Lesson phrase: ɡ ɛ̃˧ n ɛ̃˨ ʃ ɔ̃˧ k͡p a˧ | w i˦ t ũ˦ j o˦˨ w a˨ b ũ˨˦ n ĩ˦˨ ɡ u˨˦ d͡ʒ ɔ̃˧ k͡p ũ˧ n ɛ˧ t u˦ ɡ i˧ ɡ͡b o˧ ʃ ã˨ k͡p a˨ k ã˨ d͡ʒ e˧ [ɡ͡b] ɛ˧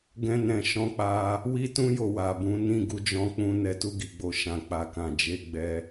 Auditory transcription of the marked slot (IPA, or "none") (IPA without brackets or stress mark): ɡ͡b